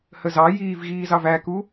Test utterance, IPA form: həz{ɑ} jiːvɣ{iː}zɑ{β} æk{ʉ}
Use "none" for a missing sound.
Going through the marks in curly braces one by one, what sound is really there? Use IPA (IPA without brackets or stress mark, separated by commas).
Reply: ɑ, iː, v, u